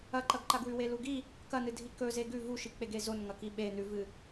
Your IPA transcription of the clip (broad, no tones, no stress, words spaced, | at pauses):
ɐǃɐɡǃaɡwʉ weluɡi | kɐnɨdʱi kɵ zeɡʉ vuʃik͡pe ɡezonŋɐki ɓe nʉvɨ